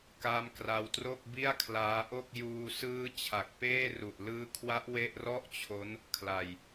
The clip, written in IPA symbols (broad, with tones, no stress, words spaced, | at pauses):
ka˦˥mkra˧wtro˥˩k̚ bi˥˩a̯kʰlaː˦˥ʔo˥˩k̚ juː˧sɯː˦˥ t͡ɕʰa˨˩k̚peː˥˩ru˨˩ʔ lɯː˦˥kʰwa˦˥ʔ we˥˩ʔ rɔ˥˩ʔt͡ɕʰo˦˥n | kʰla˧j